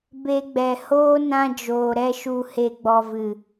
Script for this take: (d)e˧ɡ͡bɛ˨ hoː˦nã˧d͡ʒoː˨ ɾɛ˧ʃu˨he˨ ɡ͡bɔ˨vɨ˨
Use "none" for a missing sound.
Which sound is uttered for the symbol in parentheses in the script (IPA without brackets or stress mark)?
b